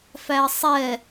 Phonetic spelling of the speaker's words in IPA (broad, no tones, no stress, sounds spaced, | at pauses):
f æ ə̯ sˤ ɛ